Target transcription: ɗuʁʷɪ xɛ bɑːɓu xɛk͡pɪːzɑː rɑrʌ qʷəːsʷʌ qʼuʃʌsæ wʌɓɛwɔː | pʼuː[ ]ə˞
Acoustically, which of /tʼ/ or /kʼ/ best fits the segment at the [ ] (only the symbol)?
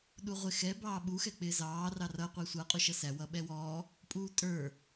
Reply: tʼ